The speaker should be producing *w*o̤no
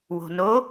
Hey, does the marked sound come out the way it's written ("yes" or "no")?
yes